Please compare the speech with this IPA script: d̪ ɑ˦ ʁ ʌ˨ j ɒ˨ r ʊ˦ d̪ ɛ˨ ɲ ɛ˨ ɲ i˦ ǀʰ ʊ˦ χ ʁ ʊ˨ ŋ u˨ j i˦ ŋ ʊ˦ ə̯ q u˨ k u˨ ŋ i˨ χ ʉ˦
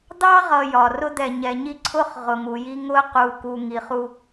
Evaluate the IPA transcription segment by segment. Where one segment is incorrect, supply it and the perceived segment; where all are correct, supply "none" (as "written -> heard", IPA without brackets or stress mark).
ʉ˦ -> u˦